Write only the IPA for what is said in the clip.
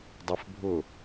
dˤ ɛ f bʱ ʊ

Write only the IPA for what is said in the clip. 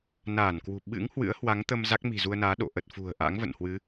n aː˧˩ n k w ṳ˨˩ ɓ ɨ̰˧˥ ŋ h w ɨ̰˧˥ ə̯ h w a˨˦ ŋ t̪ ə˧ m z a˦˥ k̚ m i̤˨˩ z u˧ ə̯ n aː˨˦ ɗ o̰˧˨ ʔ ə˨˩ t̚ f ṳ˨˩ ə̯ ʔ a̰˧˥ ŋ v ə̰˧˨ n h w ɨ˨˦

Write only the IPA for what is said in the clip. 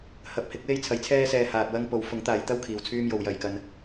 h ɐ˨˥ p̚ h ɪ˨˥ k̚ w e˥ j t͡sʰ ɐ˨ j t͡sʰ ɛː˥ s ɛː˧ h aː˨ t̚ w ɐ˥ ŋ p o˨ w f ʊ˨˥ ŋ t̪ aː˨˧ j t̪ ɐ˥ w kʰ iː˨ w t͡sʰ yː˥ m j o˨˧ w j ɐ˨ j k ɐ˧ n

